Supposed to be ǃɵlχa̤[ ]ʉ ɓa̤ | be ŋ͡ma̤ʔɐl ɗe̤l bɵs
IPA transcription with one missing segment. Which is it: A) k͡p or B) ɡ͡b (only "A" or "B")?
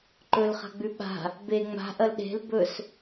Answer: B